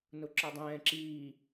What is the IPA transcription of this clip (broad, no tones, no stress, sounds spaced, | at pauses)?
n ʊ ǁ ɒ dˤ ɛ̃ː ǁ iː